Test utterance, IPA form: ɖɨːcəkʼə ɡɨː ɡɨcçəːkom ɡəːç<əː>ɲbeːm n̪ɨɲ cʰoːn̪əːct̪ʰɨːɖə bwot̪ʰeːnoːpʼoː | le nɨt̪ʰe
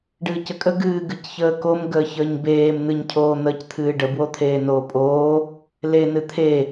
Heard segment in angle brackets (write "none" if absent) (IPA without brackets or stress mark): əː